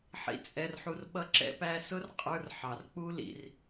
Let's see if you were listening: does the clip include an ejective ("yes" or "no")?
yes